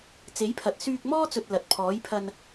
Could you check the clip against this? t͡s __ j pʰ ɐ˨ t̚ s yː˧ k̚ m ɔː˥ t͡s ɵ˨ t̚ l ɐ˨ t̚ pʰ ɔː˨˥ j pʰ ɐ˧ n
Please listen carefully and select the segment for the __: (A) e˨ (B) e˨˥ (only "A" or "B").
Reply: B